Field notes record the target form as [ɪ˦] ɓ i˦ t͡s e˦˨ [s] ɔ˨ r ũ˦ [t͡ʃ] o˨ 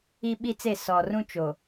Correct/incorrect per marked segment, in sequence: incorrect: i˦, correct, correct

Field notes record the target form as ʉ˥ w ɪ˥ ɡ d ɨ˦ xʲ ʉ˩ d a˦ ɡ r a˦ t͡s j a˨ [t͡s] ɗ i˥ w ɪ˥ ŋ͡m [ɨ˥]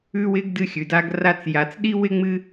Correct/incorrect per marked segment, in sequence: correct, incorrect: ɨ˦

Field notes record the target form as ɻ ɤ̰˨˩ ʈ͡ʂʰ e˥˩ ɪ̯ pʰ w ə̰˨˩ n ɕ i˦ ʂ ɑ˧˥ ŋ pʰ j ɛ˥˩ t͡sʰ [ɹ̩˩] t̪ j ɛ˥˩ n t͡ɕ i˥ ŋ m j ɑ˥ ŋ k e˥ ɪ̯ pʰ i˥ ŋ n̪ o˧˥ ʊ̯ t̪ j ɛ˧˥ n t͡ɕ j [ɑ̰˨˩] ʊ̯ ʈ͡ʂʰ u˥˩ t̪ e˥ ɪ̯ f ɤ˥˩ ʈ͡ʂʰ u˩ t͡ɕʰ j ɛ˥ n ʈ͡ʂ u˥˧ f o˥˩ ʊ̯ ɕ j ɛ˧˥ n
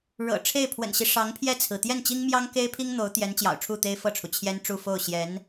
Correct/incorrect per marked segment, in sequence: correct, correct

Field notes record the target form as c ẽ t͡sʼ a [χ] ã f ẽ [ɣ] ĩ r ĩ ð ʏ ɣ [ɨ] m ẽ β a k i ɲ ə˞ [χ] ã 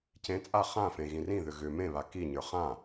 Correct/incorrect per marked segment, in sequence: correct, correct, incorrect: ʏ, correct

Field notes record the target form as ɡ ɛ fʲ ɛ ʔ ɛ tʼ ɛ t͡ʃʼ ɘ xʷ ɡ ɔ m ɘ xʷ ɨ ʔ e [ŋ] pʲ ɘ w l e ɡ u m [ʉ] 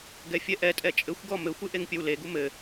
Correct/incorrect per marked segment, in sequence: correct, incorrect: ɘ

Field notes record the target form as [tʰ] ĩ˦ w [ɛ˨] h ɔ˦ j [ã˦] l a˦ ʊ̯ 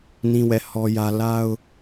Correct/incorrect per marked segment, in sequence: incorrect: n, incorrect: ɛ˦˨, incorrect: ä˦

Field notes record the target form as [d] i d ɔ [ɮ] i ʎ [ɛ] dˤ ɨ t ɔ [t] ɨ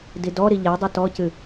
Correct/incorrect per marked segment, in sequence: correct, incorrect: ɾ, correct, incorrect: c

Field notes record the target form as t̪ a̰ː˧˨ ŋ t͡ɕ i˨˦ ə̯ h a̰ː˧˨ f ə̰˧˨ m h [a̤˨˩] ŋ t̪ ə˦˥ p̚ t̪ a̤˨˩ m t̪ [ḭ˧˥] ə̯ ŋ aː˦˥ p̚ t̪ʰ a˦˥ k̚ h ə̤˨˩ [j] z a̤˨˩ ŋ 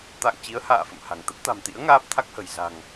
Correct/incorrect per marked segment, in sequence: correct, correct, correct

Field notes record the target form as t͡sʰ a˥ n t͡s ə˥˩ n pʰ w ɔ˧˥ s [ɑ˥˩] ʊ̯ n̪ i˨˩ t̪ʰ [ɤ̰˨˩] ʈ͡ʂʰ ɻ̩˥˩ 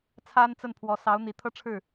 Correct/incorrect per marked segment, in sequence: incorrect: ɑ˧˥, incorrect: ɤ˥

